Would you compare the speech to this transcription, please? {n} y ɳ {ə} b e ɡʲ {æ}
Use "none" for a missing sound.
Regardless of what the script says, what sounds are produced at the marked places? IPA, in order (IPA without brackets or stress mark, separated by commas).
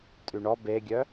tʼ, ɔ, œ